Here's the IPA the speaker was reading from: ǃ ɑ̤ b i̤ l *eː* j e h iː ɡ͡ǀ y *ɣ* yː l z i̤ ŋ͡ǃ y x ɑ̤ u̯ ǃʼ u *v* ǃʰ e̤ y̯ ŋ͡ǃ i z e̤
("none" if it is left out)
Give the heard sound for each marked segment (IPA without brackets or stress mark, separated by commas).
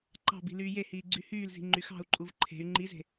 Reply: yː, h, v